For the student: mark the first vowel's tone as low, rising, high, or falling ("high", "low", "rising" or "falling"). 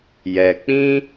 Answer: low